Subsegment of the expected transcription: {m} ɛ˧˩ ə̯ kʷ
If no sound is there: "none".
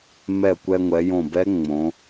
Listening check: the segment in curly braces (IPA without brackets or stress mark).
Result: m